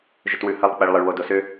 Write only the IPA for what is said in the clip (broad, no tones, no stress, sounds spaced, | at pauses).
ʒ ʏ t w ʉ h ɜ lˠ k͡p ɛ ɭ lˠ ə ɭ w o d o s ʏ